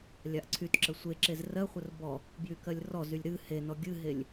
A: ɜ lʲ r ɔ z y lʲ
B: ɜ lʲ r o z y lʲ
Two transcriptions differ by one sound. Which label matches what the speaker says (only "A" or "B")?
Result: A